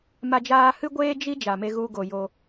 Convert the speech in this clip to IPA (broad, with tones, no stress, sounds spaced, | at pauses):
m a˦ d͡ʒ aː˦ h ɨ˦ ɡʷ eː˦ d͡ʒ i˦ d͡ʒ a˧ m e˦ ɣ u˦ ɡ o˧ j o˧